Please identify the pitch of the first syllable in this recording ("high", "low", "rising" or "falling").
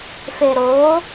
low